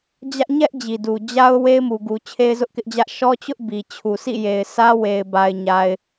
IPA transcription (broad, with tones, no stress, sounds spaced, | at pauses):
d͡ʑ ä˦ ʔ ɲ ɛ˦ ʔ d͡ʑ i˨ d u˨ d͡ʑ a˦ ʊ̯ w e˦ ɪ̯ m u˨ ɡ u˨ t͡ɕʰ e˦ ɪ̯ z ʊ˦ ʔ k ɪ˦ ʔ d͡ʑ ä˦ ʔ ʃ ɔ˦ t͡ɕ ʊ˦ ʔ b i˨ t͡ɕʰ u˨ s ḭ˦˨ j e˨ ɪ̯ sʰ ä˦ w e˨ ɪ̯ b a˨ ɪ̯ ɲ a˨ ɪ̯